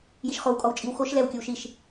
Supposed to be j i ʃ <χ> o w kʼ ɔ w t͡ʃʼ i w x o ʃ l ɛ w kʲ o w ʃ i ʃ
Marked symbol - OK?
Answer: yes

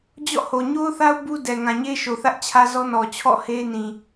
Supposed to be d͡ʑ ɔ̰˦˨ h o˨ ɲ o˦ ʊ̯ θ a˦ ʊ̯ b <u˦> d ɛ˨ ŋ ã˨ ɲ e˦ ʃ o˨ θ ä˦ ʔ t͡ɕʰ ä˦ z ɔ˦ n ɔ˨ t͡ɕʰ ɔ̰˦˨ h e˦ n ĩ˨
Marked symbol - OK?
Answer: yes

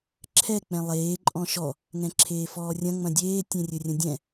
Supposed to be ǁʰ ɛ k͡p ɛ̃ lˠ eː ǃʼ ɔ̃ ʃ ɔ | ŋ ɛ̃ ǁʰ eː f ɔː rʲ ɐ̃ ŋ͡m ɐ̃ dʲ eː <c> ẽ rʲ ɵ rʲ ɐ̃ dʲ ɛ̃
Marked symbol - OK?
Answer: no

